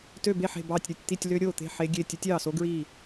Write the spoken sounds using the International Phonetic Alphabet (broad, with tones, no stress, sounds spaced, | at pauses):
t ø˥˨ b e˥˨ ħ e̤˥˨ b ɑː˥˨ tʲ ɾʲ u˥˨ tʲ t̪ i˥˨ tʲ l ø˦˥ ɾʲ oː˥˨ t̪ e̤˥˨ ħ e˦˥ ɡʲ e˥˨ tʲ e˦˥ tʲ ɑː˥˨ s o˦˥ ɡ ɹ iː˥˨